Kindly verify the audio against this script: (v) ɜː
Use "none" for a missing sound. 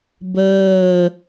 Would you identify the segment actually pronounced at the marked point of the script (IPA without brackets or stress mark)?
b